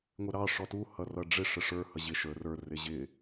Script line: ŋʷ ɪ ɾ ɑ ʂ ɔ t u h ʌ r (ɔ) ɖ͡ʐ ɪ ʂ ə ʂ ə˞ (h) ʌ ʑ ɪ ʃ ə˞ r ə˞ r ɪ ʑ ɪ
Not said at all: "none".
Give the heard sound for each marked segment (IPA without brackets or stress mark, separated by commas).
ʌ, h